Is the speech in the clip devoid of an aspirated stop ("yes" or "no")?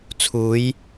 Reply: no